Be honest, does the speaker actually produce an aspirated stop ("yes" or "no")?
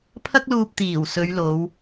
yes